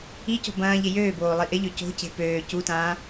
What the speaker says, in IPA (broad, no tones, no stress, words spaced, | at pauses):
ico̤ bɐ̃ːʎɪ jøːboː lˠiʔɪʎø co̤ce̤ pøː cutãː